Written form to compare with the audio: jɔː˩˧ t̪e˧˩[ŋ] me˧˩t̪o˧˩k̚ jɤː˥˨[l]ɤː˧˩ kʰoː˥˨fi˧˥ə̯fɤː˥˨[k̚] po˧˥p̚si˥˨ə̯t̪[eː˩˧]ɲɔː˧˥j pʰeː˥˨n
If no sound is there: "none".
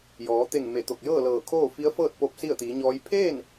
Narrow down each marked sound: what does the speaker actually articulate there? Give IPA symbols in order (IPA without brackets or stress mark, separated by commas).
ŋ, l, t̚, iː˩˧